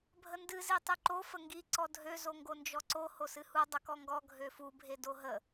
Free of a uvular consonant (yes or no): yes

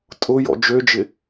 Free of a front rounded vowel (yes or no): no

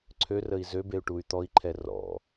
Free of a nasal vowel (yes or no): yes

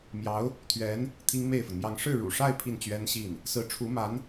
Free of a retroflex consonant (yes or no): no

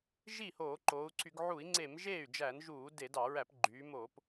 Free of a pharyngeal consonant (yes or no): no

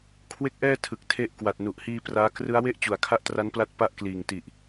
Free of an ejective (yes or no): yes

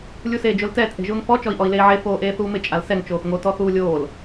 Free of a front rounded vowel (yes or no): yes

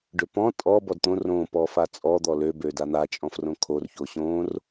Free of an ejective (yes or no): no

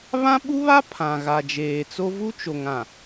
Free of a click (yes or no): yes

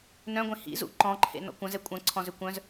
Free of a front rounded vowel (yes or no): no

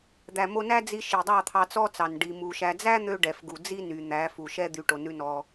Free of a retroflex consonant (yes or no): no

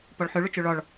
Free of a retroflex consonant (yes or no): no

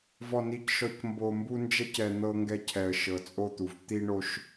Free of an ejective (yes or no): no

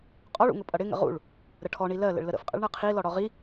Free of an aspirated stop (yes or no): no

